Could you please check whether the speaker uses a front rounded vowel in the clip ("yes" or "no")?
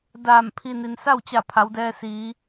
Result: no